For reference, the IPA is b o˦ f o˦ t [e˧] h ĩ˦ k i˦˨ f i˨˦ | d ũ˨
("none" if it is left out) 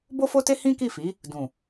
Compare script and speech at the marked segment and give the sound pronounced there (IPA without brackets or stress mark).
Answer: e˦